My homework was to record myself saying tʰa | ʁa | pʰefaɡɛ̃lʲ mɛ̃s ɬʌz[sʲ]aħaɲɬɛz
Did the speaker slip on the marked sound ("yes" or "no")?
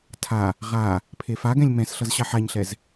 yes